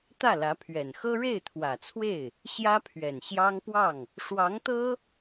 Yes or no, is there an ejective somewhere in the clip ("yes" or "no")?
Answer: no